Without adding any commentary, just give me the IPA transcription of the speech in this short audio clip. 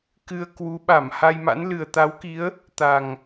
k ɨ˧ ə̯ k w u˨˦ ɓ a˧˩ m h a˧ j m a̰˧˥ n l ɨ˨˩ ə̯ t̪ a˨˦ w k i˨˦ ə̯ | t̪ a˨˩ ŋ

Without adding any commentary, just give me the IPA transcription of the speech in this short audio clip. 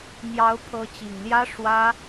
m j ɑ˧˥ ʊ̯ pʰ ɤ˧˥ t͡ɕ i˨˩ ŋ l j ä˥ ʂ w ä˥

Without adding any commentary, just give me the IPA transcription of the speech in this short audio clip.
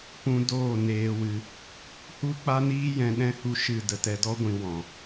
p ũ˧ d oː˦˨ n eː˧ w ɨ˧ | h u˦ k͡p a˦ n iː˦ j ɛ̃˧ ɗ ɛ̃˦ h u˦ ʃ ɨ˦˨ d ə˧ t ɛ˧ d ɔ˦ ɡʷ ĩ˧ w ɔ̃˨

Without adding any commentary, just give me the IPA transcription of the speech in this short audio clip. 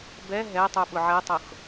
b ɛ ɦ ɛ tˤ u ɓ ʊ ʕ ɛ tˤ ʊ x

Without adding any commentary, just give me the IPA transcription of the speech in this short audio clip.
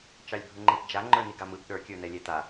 t͡ʃ ɑ lʲ bʱ ɯ ŋ͡ǃ e p d͡ʒ a ŋ͡ǃ ə˞ n i ɡ a m ɯ ɡ ɗ ə˞ kʲ ə˞ n ɛ lʲ ɛ t a

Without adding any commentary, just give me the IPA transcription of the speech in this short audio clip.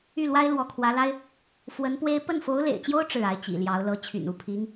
y˥˩ l w a˥ ɪ̯ l w ɔ˧˥ kʰ w ä˧˥ l a˥ ɪ̯ | f w ə˧˥ n p w e˥ ɪ̯ p ə˥˩ n f o˧˥ ʊ̯ l ḛ˨˩ ɪ̯ t͡ɕ j o˥ ʊ̯ ʈ͡ʂ ɻ̩˥˩ a˧˥ ɪ̯ t͡ɕ ḭ˨˩ l j ɑ˧˥ ʊ̯ l ɤ˧˥ t͡ɕʰ y̰˨˩ n u˧˥ pʰ i˧˥ ŋ

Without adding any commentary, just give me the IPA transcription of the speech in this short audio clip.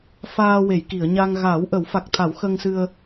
f aː˧ w e˨˩˨ j k i˨˩˨ ə̯ ɲ a˧ ŋ ɣ a˨˩˦ w ʔ ə˨˩˦ w f a˨˩ k̚ t̪ʰ a˨˩˦ w x ə˧ ŋ s ɨ˧ ə̯

